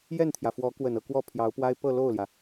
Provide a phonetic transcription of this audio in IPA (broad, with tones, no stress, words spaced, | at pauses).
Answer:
jɛ˥˩nt̪ʰjä˩ fwɔ˧˥kwə˨˩nɤ˥˧ kwɔ˥˩pʰjɑ˧˥ʊ̯pwa˥ɪ̯ pɤ˥˧lo˥˩ʊ̯ljä˩